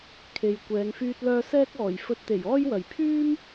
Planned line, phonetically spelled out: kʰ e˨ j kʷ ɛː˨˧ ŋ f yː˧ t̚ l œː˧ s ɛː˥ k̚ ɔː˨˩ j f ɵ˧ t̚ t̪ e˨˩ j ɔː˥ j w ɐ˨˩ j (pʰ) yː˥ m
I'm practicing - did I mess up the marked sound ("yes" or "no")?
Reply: no